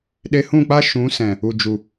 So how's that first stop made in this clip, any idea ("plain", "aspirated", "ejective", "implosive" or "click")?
implosive